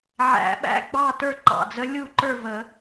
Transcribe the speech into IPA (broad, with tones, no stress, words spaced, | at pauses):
ʕæ̰˨˩˦ɓæ̰˧˥ ɡ͡bɑ˥˨tə˞˥˨ ǃɑ̰˨˩d͡zə˧˥ lʲu˥˨ ǃə˞˥˨və˨˩˦